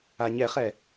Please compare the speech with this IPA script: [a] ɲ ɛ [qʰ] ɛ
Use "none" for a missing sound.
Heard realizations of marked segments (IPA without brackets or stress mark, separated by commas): a, χ